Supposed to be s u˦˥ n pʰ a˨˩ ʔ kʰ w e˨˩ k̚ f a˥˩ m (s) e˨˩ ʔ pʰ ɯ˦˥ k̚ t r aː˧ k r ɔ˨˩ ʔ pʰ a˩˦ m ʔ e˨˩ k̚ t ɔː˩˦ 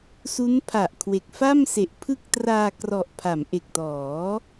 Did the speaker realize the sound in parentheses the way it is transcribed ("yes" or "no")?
yes